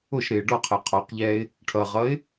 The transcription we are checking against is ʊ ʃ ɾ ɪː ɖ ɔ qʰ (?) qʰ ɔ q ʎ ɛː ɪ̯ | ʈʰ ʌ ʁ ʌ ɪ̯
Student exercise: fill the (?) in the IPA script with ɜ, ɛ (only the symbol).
ɜ